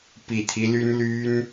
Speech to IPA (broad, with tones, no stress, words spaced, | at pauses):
pi˨˩t̪ʰi˦ly˦n ly˦n